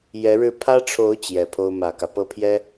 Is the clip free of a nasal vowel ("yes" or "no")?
yes